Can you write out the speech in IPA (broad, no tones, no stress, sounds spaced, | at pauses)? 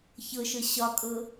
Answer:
ç ɤ ʃ ɤ ɕ ɒ kʼ ɤː